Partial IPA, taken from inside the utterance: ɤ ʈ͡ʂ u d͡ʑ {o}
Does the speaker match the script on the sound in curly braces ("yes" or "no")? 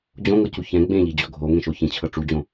no